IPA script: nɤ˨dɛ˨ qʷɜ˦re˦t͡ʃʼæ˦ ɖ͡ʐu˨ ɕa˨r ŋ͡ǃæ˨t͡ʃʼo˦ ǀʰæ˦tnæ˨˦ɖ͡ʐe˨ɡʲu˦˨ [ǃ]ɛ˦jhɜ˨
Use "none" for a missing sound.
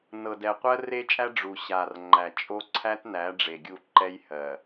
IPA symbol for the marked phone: ǃ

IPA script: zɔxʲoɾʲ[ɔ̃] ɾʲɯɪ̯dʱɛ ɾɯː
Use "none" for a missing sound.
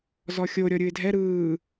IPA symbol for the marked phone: ɔ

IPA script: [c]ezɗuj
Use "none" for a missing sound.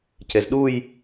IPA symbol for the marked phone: c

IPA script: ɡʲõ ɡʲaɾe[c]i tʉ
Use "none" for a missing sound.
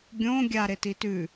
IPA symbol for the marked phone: t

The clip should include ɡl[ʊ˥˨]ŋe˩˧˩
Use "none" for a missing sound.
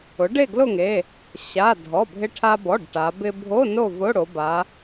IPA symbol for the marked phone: ʊ˥˨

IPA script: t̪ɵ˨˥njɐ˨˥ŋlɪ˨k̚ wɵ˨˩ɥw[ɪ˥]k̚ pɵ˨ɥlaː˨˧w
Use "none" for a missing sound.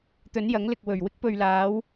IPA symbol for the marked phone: ɪ˥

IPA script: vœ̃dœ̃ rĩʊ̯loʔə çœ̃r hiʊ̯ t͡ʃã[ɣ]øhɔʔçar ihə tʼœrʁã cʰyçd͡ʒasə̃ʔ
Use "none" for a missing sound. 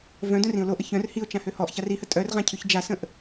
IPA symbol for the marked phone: h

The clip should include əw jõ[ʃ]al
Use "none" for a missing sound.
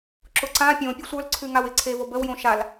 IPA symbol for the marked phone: ʃ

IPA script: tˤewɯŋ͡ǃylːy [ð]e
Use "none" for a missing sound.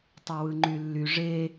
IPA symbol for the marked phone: ʐ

